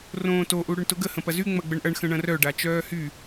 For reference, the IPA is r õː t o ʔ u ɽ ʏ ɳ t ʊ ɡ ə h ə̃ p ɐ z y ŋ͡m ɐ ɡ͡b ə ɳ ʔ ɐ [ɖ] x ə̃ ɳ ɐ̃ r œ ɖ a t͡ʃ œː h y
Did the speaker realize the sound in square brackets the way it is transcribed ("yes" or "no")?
no